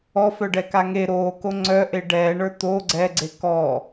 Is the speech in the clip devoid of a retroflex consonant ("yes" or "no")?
no